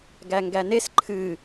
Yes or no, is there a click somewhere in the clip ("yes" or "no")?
yes